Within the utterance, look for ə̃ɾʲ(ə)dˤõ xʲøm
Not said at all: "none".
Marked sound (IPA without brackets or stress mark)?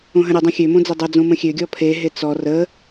ə